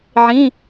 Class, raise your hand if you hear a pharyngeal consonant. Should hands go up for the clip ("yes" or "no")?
yes